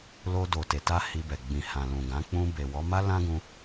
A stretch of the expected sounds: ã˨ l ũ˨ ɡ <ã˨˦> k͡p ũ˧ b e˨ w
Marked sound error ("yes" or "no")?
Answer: no